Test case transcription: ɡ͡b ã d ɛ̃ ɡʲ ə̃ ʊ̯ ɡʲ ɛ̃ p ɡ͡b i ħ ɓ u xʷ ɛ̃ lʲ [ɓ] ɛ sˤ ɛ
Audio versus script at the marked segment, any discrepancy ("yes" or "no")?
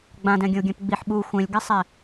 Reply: yes